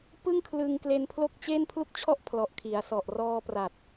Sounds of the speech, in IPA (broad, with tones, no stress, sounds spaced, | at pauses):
p ɯ˥˩ ŋ kʰ l ɯ˧ ŋ k l e˧ n pʰ l o˥˩ k̚ t͡ɕ eː˥˩ n pʰ l u˥˩ k̚ t͡ɕʰ ɔ˥˩ ʔ pʰ l ɔ˨˩ ʔ kʰ i˩˦ a̯ s ɔ˨˩ ʔ r ɔː˧ p r a˨˩ t̚